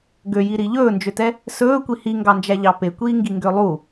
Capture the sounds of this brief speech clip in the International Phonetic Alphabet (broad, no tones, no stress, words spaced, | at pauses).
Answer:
ɡøjiɾi ʎɵːnd͡ʒøtɛ | sɵːkʷi hiŋɡɑnd͡ʒæʎɑ pekʷiːŋɡiŋɡø lˠu